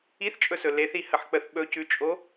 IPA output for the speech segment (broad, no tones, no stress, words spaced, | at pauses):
iθt͡ʃʼɵsɵ leθihəħk͡pəθ ɓɵcʉt͡ʃʼo